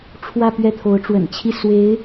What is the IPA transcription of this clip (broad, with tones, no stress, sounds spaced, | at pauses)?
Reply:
ʈ͡ʂʰ w ä˥˧ p ɥ ɛ˥˩ t̪ʰ o˧˥ ʊ̯ ʈ͡ʂ w ə̰˨˩ n t͡ɕʰ i˥˩ s w e˧˥ ɪ̯